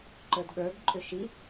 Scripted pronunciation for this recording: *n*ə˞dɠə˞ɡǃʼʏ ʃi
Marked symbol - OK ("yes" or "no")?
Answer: no